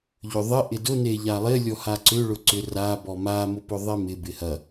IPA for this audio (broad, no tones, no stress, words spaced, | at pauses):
ʎʏðˤɪ ʔɪdʊ neʎalˠɪ lʲɔhaǀʏ ɭʊǀʏ ra bɔma mʊpʊðˤemɪ bɪhɐ